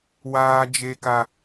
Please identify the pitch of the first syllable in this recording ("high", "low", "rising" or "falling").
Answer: high